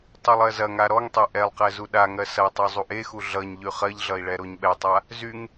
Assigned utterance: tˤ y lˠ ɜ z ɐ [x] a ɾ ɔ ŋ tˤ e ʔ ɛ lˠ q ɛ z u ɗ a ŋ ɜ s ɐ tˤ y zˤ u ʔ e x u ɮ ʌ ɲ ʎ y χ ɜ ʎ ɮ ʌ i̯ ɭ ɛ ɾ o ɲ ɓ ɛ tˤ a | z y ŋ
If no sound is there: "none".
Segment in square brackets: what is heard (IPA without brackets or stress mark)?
ŋ